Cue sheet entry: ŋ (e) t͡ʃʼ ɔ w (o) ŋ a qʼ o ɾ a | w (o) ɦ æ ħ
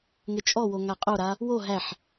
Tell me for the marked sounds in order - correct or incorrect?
correct, correct, correct

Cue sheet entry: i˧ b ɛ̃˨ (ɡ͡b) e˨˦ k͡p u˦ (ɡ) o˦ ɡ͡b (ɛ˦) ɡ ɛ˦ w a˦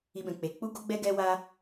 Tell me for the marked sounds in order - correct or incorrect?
incorrect: k͡p, correct, correct

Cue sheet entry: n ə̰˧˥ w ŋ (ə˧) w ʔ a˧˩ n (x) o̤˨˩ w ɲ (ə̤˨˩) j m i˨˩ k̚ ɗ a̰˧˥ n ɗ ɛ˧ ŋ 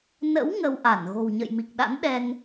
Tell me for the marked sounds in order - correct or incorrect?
correct, incorrect: ɣ, incorrect: ə̰˧˨

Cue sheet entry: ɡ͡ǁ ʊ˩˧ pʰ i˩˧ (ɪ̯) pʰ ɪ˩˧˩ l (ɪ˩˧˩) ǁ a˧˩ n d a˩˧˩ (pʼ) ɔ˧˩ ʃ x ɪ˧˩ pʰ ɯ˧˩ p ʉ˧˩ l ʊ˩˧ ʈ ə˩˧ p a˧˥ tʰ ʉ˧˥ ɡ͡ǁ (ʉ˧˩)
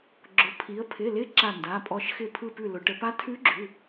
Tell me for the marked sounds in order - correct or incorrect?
incorrect: ə̯, incorrect: ɪ˧˥, correct, incorrect: ʉ˩˧˩

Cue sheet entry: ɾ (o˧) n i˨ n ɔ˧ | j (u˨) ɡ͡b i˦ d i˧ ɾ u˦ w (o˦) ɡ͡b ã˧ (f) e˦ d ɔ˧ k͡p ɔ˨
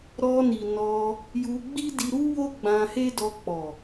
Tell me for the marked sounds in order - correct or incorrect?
incorrect: ɔ˧, incorrect: u˧, correct, incorrect: h

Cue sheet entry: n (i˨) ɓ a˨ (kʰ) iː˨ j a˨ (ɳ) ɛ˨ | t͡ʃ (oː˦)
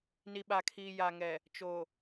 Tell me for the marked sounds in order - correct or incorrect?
correct, correct, incorrect: ŋ, incorrect: oː˨

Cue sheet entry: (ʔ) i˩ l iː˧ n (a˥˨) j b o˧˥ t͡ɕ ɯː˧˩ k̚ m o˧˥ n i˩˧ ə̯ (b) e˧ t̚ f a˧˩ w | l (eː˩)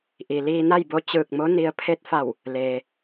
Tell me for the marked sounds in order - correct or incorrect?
correct, correct, incorrect: pʰ, correct

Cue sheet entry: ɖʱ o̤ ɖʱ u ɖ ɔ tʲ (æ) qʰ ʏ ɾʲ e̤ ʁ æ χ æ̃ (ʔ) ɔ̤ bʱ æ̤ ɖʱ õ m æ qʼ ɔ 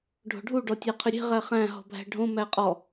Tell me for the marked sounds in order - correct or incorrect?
correct, incorrect: ɦ

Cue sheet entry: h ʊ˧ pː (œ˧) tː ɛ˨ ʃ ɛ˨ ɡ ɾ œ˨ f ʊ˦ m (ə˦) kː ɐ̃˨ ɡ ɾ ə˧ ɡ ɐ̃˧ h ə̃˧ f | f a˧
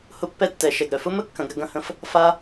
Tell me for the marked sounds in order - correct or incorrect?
incorrect: ɛ˧, correct

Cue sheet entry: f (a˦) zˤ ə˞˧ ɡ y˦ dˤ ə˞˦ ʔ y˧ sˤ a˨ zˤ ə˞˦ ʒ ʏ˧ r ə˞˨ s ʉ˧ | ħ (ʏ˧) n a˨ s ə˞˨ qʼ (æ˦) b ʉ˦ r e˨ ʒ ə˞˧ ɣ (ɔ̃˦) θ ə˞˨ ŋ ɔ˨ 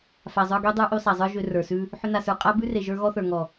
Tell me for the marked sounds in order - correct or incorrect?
incorrect: a˨, correct, incorrect: a˦, incorrect: ɔ˦

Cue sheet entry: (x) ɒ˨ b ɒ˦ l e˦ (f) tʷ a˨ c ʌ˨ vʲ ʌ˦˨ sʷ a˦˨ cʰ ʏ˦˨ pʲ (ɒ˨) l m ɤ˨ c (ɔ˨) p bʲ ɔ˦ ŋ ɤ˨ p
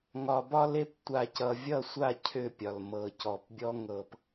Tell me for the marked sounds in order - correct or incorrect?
incorrect: ŋ, incorrect: p, correct, correct

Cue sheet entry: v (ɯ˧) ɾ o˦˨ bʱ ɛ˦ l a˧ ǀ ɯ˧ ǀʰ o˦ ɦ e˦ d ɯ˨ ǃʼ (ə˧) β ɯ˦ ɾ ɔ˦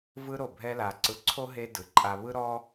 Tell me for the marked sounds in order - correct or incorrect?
incorrect: ɯ˦, incorrect: a˧

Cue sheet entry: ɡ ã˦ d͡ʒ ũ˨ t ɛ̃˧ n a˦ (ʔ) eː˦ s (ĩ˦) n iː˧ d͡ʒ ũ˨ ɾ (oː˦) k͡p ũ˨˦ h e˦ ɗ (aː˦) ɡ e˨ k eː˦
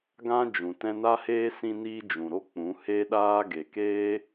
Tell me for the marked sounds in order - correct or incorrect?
incorrect: h, incorrect: ĩ˧, incorrect: o˦, correct

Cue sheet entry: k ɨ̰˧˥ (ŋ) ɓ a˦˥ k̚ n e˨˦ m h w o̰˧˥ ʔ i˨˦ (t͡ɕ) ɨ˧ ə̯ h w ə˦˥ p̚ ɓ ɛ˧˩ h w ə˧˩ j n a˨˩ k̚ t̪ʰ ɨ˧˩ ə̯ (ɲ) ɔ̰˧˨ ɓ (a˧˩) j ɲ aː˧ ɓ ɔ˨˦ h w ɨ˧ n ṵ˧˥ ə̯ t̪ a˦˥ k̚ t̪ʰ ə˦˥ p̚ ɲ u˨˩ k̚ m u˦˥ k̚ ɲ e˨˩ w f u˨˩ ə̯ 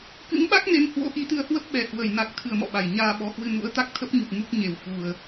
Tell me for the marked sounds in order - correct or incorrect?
correct, incorrect: t̪, incorrect: m, correct

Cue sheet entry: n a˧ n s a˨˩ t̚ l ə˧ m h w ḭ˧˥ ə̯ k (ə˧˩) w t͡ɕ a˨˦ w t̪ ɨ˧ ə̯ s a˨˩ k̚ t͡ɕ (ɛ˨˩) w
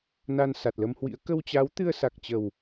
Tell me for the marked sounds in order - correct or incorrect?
incorrect: ə˧, incorrect: ə˨˩

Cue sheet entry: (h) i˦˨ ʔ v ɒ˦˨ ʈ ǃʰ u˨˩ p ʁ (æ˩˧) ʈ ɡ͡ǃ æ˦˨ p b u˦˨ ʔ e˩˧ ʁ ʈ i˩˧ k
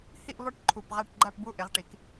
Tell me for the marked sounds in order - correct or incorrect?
correct, incorrect: æ˦˨

